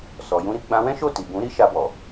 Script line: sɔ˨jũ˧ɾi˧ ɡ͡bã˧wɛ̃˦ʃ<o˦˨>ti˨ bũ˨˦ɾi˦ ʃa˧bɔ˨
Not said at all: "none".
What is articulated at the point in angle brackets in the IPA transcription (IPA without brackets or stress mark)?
o˦˨